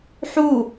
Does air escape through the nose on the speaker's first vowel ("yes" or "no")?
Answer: no